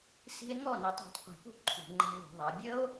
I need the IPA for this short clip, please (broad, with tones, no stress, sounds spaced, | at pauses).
s i̤˦˥ e̯ ŋ ɔ˥˩ n i˧˩˧ tˤ a̤˧˩˧ tˤ qʷ i̤˧˩˧ p ṳ˥˧ ǃʰ ṳ˧˩˧ ŋ͡ǃ a̤˦˥ v ṳ˧˩˧ ðˤ a˩˥ bʲ ə˦˥ o̯